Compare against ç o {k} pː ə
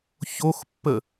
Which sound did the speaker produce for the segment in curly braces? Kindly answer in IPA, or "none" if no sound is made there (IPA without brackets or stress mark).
x